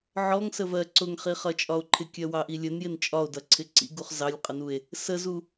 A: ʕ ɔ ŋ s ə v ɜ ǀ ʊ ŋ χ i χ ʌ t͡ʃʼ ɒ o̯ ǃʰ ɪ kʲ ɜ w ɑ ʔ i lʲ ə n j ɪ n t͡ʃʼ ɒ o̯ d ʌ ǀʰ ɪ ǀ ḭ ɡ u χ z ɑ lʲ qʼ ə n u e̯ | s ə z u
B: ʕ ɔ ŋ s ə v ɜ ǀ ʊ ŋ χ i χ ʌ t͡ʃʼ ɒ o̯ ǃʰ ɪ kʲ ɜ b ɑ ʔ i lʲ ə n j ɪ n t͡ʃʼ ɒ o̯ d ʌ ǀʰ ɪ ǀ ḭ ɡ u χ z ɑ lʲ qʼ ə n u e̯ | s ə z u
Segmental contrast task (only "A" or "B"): A